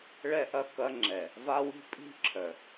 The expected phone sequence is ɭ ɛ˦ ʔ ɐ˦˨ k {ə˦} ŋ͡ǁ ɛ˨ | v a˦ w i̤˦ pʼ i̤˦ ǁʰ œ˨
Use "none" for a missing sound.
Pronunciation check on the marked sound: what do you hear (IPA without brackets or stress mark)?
ɐ˦